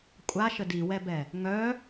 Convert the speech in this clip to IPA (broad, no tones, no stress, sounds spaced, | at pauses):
kʷʼ a ʃ ə d i w ɛ b ɛ | ŋ œ